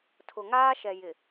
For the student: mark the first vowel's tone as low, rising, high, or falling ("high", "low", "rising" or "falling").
low